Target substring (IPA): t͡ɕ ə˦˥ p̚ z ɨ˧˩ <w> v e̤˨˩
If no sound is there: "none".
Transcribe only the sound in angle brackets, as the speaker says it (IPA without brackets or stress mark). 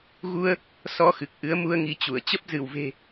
w